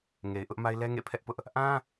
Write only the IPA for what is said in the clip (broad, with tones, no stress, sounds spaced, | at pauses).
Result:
ŋ e˨ ɪ̯ ʔ ʊ˦ ʔ m a˦ ɪ̯ l ɛ˦ ŋ ḛ˦˨ pʰ ɛ˦ ʔ p ʊ˦ ʔ | ʔ ã˦